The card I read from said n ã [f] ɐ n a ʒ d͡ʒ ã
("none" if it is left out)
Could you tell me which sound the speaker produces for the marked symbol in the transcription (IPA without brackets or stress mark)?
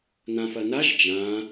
f